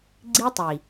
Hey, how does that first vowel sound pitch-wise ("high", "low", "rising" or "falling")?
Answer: high